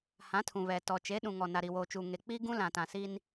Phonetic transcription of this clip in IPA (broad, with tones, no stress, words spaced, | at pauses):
hã˨˦tʰũ˨βɛ˨tɔ˨ t͡ʃe˨˦ɗũ˨ŋɔ˨ na˨ɾi˨woː˨t͡ʃuː˨ ŋe˨k͡pi˦ɡũ˦ lã˨tã˨si˦n